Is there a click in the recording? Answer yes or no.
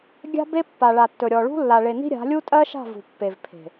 no